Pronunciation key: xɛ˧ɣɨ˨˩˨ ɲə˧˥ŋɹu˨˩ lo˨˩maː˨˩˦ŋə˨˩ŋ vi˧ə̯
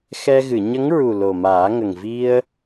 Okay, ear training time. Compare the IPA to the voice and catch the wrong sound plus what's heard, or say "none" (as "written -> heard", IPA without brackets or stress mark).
none